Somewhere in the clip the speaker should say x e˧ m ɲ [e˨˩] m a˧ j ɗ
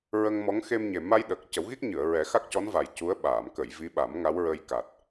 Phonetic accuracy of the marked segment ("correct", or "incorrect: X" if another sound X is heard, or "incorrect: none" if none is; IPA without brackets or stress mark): correct